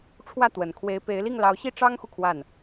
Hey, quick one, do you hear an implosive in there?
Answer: no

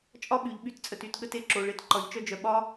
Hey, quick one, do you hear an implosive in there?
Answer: yes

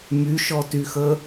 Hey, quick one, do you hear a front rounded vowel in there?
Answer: yes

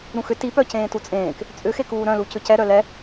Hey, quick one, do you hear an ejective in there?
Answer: yes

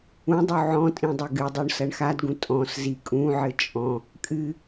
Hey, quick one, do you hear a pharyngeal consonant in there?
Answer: yes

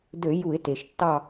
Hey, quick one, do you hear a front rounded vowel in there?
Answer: yes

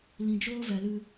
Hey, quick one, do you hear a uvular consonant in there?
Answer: no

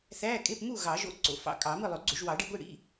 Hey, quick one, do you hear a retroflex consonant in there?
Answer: yes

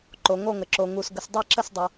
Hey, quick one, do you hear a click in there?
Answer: yes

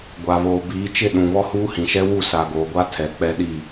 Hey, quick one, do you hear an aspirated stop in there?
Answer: yes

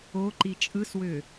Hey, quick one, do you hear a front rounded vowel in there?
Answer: yes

